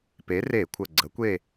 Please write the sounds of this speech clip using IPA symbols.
pe˨˥re˧˩˧kʷʰə˨˩ ɡ͡ǀə˨˥kʷe˦˨

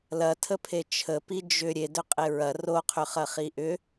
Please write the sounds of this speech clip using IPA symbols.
lɐtʰəpʰe t͡ʃʰəpi d͡ʒʏ ɾʲedʏqʼe ɹɐ roqʰʏχɐχi ʔʏ

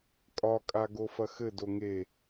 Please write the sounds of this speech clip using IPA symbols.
kʼɒkʼa ɡofɐxɘdo ŋe

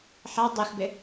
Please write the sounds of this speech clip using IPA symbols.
ħa dˤexbɪ

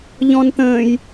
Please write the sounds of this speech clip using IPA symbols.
ʎɔ̃nt̪ə̃ːj

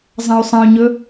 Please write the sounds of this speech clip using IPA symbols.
zˤɐ̃y̯sˤɐ̃y̯ɲɵ

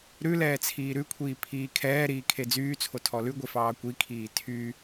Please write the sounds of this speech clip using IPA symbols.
ɾʉlɛː t͡sʰiːɾʉkʷʰiː pʰiːkʰɛːɾiː kʰed͡zyːt͡sʰo tʰɔlʉɡʷe fɑːkʷikʰiː tʰy

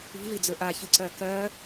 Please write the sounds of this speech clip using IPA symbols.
i̤vid͡zɵ ʔaçɨǀɜ kɜ

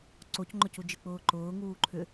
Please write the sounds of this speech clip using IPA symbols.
ǀocŋ͡ǃʊcud͡ʒɨ k͡pʊːǃʊː ŋuːǃʰʏ

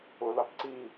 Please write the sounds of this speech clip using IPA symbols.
ʊ lɑpǀi

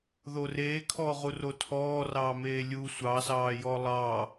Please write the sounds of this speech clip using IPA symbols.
ðoreːkʰɔː ʁurotʰɔːrɑː meːlʲu sʷɑsɑːjɔ lˠɑ

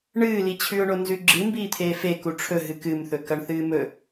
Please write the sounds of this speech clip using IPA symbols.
ɳɨːlit͡ɕʰʉʊ̯ɳo nzʉɡ͡ǁɨ mbiːt̪ʰeːfe kuʈ͡ʂʰɵ ɦɨkɨmθɵ kɐɳθɨːmɵ

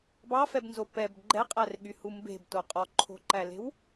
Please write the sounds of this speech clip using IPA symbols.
bɑfɛbnzo pɛb ɡ͡ǃɛqʼærɠyhu mbe̤bto qʼɔǃʰo̤ǃæle̤w

